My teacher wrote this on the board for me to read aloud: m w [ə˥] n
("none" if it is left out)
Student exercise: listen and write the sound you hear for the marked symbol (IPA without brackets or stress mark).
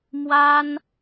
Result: a˥